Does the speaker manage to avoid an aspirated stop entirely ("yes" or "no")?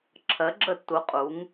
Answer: no